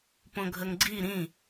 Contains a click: yes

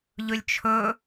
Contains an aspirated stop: yes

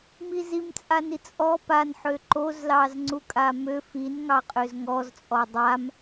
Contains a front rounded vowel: yes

